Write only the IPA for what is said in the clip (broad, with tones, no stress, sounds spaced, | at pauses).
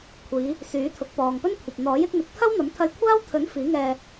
kʷʰ iː˨˧ | s yː˨˥ t̪ʰ ʊ˨˥ k̚ p ɔː˨ ŋ p ɵ˥ n kʷʰ ɐ˨ p̚ n̪ ɔː˨˥ j ɪ˨˥ k̚ n̪ ɪ˨˥ k̚ t̪ʰ ɐ˥ w n̪ ɐ˨˥ m t̪ʰ ɐ˧ j kʷʰ aː˥ w t̪ʰ ɵ˨˥ n f iː˨˥ ŋ ɛː˧